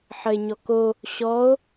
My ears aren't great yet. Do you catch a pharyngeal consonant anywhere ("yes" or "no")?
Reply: yes